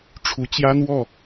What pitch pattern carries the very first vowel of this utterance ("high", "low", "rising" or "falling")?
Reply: rising